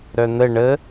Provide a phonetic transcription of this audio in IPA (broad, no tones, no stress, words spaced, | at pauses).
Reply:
ɾœn̪ə ɳə